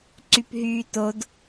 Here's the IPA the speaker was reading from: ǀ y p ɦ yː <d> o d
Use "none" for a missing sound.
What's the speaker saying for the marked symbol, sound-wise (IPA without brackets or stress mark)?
t